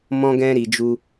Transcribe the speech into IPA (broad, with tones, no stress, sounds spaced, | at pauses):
m ɔ̃˦ ɡ ɛ̃˦ ɾ i˧ d͡ʒ u˦